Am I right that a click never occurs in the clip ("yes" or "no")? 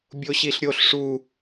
yes